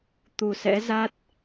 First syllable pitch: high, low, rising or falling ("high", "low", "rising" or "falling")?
low